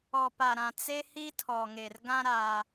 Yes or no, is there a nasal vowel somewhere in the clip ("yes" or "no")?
yes